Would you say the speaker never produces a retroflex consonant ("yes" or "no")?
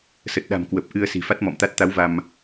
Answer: yes